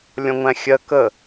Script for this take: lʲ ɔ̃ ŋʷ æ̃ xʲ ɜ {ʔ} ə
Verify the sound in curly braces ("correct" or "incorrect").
incorrect